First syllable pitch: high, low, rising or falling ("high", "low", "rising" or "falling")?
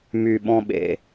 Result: low